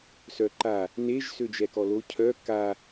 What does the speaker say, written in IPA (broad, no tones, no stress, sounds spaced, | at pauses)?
s œ ǃ a | n e ʒ s ø d͡ʒ ɛ k ɔ l o cʰ œ k a